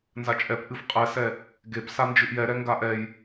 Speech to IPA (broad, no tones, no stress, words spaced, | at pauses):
nzat͡ʃʼɛp ʔɨfqʼɛsɛ | ɡep sand͡ʒɨʔjɛɾɛ ŋɡaʔɛj